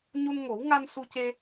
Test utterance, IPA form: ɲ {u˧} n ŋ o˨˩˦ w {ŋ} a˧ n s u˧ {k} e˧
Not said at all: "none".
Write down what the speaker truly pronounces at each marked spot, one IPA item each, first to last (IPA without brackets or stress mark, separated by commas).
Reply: u˧, ŋ, c